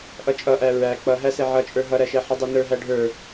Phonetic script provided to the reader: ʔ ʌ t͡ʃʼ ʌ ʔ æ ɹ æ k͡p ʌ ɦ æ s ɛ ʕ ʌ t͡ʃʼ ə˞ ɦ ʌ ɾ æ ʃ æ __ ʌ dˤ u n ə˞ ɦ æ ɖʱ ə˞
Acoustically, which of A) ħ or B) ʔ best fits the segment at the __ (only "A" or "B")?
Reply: A